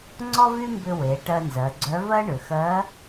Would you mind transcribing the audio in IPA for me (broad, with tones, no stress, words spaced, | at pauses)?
ŋ͡ǀɔ˥vy˥mbʏ˧ we˩˧ ʈɜ˧nzɜ˩˧ɡ͡ǀœ˧˥vɜ˥ ɳʏ˩xɜ˧˥